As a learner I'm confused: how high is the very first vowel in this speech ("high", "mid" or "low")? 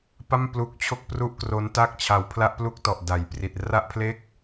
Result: low